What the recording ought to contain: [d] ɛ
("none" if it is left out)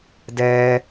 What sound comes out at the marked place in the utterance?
d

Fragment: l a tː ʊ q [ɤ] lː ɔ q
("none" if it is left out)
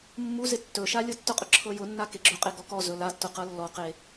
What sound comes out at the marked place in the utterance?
ɤ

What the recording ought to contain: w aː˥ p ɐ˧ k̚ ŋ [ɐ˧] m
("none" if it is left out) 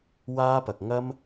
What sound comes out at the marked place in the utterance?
ɐ˥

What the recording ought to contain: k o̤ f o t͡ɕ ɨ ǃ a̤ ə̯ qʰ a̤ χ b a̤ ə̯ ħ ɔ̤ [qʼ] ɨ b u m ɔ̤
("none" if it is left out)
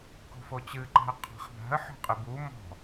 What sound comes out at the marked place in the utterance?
qʼ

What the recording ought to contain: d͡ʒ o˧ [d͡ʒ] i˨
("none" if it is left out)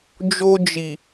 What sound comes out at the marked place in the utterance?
d͡ʒ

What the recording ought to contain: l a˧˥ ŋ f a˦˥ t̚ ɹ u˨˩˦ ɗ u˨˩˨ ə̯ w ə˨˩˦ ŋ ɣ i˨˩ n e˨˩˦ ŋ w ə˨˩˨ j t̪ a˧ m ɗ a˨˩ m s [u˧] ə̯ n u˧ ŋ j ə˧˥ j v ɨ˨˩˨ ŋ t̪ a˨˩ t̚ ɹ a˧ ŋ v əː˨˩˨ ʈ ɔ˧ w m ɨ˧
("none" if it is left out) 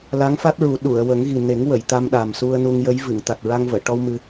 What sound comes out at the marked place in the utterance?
u˧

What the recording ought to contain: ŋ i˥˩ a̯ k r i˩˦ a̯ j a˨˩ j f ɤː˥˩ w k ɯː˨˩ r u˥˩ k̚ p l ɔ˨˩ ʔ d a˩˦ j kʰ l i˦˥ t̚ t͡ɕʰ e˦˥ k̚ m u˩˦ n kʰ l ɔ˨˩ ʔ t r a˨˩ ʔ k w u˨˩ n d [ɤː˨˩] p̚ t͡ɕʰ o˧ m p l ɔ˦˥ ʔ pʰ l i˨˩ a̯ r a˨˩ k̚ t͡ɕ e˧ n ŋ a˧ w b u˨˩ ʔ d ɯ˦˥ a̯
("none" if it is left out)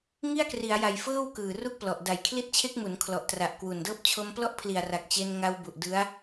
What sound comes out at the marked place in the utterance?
ɤː˦˥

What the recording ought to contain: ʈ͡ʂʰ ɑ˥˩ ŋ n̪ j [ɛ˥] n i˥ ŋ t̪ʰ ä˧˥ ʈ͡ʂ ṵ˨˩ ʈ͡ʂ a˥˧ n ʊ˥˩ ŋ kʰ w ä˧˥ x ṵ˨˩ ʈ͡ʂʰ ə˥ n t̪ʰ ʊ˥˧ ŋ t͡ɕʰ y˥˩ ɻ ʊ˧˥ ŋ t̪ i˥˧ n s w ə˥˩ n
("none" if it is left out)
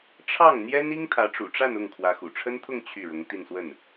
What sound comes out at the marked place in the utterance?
ɛ˥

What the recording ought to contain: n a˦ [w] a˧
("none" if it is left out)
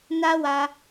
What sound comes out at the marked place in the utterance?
w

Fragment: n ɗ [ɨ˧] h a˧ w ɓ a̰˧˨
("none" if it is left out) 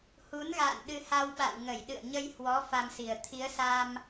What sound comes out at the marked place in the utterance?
ɨ˧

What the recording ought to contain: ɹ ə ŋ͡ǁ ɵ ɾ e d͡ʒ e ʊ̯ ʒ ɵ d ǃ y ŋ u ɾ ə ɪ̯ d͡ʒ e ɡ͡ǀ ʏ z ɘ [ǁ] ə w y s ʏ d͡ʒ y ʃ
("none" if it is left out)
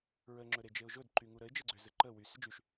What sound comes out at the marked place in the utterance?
ǃ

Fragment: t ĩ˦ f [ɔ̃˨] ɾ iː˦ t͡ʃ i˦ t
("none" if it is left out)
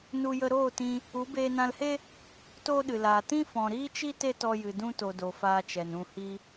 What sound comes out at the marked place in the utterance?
ɔ̃˨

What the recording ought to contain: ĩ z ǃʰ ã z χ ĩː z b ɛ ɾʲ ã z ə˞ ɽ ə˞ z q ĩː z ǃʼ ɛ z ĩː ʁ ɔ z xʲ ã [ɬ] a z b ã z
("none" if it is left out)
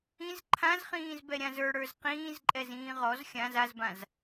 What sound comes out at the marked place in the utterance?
z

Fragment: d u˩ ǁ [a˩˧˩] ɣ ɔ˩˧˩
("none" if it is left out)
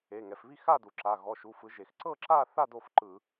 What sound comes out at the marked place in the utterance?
a˩˧˩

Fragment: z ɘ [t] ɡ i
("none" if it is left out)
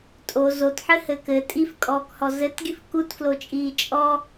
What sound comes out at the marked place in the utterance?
t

